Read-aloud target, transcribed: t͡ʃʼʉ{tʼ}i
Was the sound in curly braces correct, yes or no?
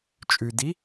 no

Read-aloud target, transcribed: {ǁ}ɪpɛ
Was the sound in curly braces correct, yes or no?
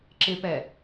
yes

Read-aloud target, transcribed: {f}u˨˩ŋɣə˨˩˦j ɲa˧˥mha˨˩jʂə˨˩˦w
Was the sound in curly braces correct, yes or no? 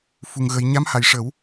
yes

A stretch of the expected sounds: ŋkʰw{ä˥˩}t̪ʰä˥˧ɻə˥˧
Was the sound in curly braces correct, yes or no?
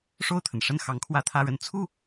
no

